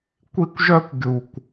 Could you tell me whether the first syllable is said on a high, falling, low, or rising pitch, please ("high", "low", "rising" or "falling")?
high